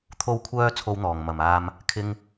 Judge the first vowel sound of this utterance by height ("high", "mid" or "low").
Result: mid